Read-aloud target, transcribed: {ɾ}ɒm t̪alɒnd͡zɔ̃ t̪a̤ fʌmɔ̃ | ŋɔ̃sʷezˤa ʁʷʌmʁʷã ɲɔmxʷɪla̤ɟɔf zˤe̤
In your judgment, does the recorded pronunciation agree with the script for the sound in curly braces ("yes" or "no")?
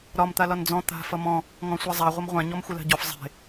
yes